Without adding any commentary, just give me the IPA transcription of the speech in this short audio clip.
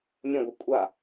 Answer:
mʲə̃ɡʷʌ kʷʼa

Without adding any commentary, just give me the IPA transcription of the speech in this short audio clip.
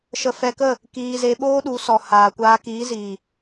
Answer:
ʃə˧fɛ˧kə˦˨ | kiː˧ze˧ ɓoː˦ɗu˨˦sɔ˨ haː˨kʷaː˧kiː˨˦ziː˨

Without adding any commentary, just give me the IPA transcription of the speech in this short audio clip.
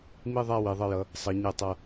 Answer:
mi˥˧ðˤa˥˧ wi˩˧ðˤʌ˧jʌ˩˧ | sˤʌ˩˧ɲe˧˩tˤʌ˧˩

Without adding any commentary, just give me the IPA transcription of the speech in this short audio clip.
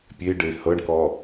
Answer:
pʲeɖe hɤɳkɔ

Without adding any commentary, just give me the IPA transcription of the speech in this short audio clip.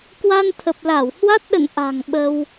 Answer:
kwa˧nt̪ʰə˨˩p̚la˧˩w hwa˦˥t̚ɗə̰˧˨n ʔa̤˨˩ŋ ɓə˧w

